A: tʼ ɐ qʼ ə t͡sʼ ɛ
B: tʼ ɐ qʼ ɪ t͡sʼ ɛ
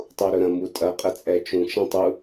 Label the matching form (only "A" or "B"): A